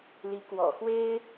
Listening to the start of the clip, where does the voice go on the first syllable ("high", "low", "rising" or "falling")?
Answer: rising